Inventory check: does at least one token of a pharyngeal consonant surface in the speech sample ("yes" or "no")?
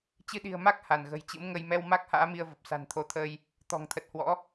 no